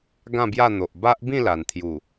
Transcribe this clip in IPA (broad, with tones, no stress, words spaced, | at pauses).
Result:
ɡã˥˧bja˥˧n̪o˨ʔ ba˦ʔ bĩ˥˧la˨˩nt̪ʰju˨˩